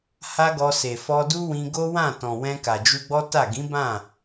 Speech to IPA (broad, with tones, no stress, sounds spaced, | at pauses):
h a˦ ɡ ɔ˧ s e˨ f ɔ˧ d u˦ w ĩ˧ ɡ o˦ w ã˦˨ t ɔ̃˨ w ɛ̃˧ k a˨ d͡ʒ u˧ ɡ͡b ɔ˦ t a˦˨ ɡ ĩ˨˦ b ã˦˨